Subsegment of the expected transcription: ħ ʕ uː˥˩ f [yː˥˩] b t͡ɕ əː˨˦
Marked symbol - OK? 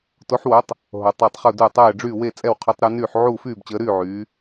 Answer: yes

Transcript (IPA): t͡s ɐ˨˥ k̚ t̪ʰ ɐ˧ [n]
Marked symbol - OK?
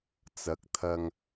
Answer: no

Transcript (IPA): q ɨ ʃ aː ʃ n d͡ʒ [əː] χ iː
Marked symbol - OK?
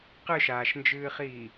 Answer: no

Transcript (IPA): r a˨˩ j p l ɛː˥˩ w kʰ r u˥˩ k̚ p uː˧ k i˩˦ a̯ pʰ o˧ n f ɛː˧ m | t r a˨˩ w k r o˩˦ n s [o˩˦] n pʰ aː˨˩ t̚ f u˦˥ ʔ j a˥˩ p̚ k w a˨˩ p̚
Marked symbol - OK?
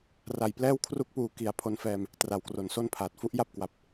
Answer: no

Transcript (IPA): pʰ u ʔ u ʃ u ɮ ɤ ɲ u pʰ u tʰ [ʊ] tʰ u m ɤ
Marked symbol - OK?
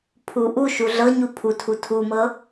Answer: no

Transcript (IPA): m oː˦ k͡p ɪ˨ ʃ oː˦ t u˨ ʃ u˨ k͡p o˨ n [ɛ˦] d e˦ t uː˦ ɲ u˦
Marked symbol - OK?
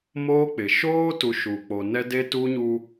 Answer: yes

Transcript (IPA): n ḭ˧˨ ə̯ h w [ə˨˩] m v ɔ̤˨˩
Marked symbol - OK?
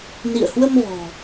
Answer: no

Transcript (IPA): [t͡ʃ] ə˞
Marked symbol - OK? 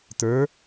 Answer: no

